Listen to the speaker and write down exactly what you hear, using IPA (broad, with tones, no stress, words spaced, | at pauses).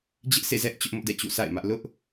d͡ʑɪ˦ʔsḛ˦˨zɛ˦ʔ t͡ɕʊ˦ʔmʊ˦ʔdɛ̰˦˨ t͡ɕṵ˦˨sa̰˦˨ɪ̯mä˦ʔ lʊ˦ʔ